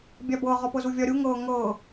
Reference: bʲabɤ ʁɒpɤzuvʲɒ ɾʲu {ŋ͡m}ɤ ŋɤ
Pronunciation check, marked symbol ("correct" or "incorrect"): incorrect